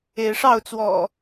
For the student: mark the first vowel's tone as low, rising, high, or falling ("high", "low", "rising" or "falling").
rising